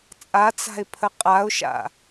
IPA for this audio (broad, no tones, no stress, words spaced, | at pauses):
t͡sʼat͡sa̤ɪ̯pʰə qʼaʊ̯ʃa̰